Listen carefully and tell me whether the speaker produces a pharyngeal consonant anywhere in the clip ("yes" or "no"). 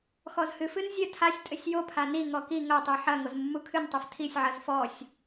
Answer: yes